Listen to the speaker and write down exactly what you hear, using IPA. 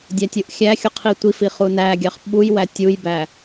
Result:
dʲ æ tʲ u ʔ xʲ æ xʲ u qʰ i tʷ i f i χ u n æ ɡʲ ɑ χ ɓ u j w æ tʲ u j b æ

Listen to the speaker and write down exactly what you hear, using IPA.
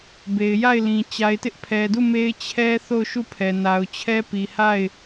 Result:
b e˨ ɪ̯ j a˦˨ ɪ̯ l ĩ˨ t͡ɕ a˨ ɪ̯ t ɪ˦ ʔ pʰ ɛ˨ d u˦˨ m e˦ ɪ̯ t͡ɕʰ ɛ˦ θ o˦˨ ʊ̯ ʃ u˦˨ pʰ ɛ˨ n a˨ ʊ̯ t͡ɕʰ ɛ˦ p i˨ h a˦˨ ɪ̯

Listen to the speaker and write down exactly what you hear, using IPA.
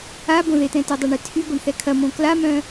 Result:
a b õ ð e t ɛ̃ t e dˤ a ɳ e tʰ y ɡʷ ɐ ɳ θ ɛ kʰ ɐ m õ k l a m œ̃

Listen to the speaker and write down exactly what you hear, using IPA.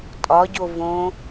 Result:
tʼ ɒ ɟ o v õ

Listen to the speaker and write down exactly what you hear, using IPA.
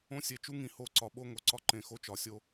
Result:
õ˦ sʲ e˧ t͡ʃ u˦ ŋ ĩ˧ h o˦˨ ǀ ɒ˧ ɓ o˦ ŋ o˧ ǀ ɒ˦ ǃ ẽ˧ x o˦ t͡ʃ ɒ˧ sʲ o˦

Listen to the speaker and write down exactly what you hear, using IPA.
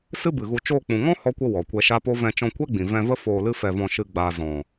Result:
s ɨ˦ b ɨ˨ ɣ u˧ t͡ʃ oː˧ k͡p ũ˨ ŋ ɔ̃˦ h ɔ˦ kʷ ə˦ w ɔ˨ kʷ ɛ˧ ʃ a˦ p o˦ v ɛ̃˧ t͡ʃ ɔ̃˧ kʷ ɛ˦ ɡ͡b ĩ˨ v ɛ̃˧ v ə˦ f oː˧ l ɨ˦ f ɛ˧ v ɔ̃˧ ʃ ɨ˧ ɡ͡b aː˨ z ɔ̃˨

